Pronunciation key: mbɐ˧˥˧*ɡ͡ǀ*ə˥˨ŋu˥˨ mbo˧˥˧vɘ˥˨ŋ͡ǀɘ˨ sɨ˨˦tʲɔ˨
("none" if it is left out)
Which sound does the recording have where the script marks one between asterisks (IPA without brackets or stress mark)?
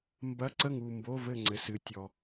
ǀ